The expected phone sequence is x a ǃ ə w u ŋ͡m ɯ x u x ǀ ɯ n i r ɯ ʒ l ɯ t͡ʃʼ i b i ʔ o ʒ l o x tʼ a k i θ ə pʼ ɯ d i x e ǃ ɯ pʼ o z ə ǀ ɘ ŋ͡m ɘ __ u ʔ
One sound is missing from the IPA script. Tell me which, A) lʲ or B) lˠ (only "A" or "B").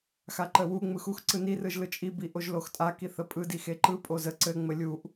A